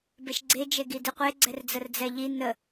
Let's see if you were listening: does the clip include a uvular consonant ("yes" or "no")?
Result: yes